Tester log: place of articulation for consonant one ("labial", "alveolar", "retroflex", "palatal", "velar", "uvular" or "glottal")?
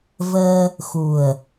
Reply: labial